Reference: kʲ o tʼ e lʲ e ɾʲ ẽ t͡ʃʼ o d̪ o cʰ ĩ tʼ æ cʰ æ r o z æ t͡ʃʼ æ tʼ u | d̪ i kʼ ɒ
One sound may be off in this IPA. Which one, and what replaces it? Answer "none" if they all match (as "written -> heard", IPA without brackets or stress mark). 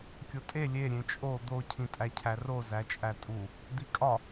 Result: none